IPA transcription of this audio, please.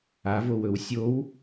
avowɵw sʲow

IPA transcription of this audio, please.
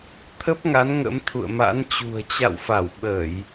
t̪ʰə˦˥p̚ŋa˨˦n ŋə̰˧˥mt̪ʰṵ˧˨ə̯ma̰˧˥nt͡ɕṳ˨˩ə̯ t͡ɕa̰˧˨wfa˧˩w ɓəː˧˩˨j

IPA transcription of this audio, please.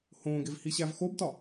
hõːɡev hiɕævxobtɒ

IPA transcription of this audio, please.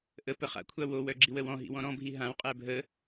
ʔəpə χa̰kʷʰa wowœ ɡ͡ǁiwəwɔ̃ɦḭ wɔ̃ɾɔ̃bʱi ɦãwqʼæ bʱə

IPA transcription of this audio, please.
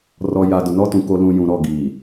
rɔ˨ja˨ dʊ˨nɔ˦tũ˨ ko˨ lũ˨ jũ˨ɾɔ˦˨ ɡiː˨

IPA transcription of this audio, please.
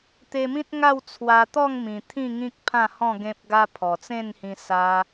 t̪e˧mĩ˦t̚ŋa˥˧w t͡sʰwa˧t̪ɔ˥˧ŋmĩ˨˩ t̪ʰĩ˥˧ ŋĩ˦k̚pʰã˥˧hɔ̃˥˧ ɡẽ˦p̚ɡa˦ pʰɔ˨˩t͡sẽ˥˧nhĩ˧ sa˧

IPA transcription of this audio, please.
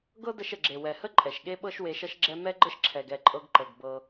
ɡɤ˦də˧ʃə˨ɡ͡ǁe˨ wɛ˨hə˦ ǃʼɛ˨ʃɠe˦ɓɤ˦ʃ we˧ʃʌ˦ʃɡ͡ǁɛ˦ mɛ˦ɡ͡ǃə˦ʃǁʰɛ˨ɡ ɛ˦˨ǃʼɤ˧ɡǃɤ˨ɡ bɤ˧

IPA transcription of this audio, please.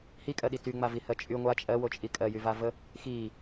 hikʼɜɗi tyŋ͡mavihɜ t͡ʃʼy ŋʷa t͡ʃʼɜwot͡ʃʼi kʼɜjyvavə | xi

